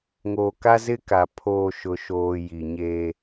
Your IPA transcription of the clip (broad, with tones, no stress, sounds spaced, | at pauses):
ŋ oː˨ k a˦ z ɪ˦ k a˨ pʰ oː˨ ʃ ʊ˨ ʃ oː˨ j i˨ ɲ eː˦